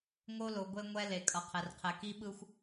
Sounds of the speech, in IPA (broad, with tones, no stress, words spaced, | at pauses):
ŋo˦lo˨ɡʷe˦ ŋʷɛ˦ le˨kʼʌ˨qʰɛ˨rqʰɛ˨ ki˦ɓɯ˦xʷ